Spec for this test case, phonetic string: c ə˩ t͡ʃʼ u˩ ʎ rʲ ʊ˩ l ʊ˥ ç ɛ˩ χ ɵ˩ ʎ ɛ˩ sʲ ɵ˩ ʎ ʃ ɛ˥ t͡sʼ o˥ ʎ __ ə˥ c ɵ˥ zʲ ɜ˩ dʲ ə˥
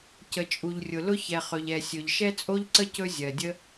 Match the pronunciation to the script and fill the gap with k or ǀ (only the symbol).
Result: ǀ